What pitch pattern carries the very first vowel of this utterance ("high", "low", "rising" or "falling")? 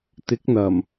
rising